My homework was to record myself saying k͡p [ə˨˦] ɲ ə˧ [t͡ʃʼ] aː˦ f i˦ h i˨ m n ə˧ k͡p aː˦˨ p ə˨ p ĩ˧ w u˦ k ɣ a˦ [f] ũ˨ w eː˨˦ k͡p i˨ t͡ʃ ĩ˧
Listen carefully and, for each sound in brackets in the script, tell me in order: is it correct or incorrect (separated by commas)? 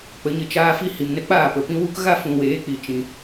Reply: correct, incorrect, correct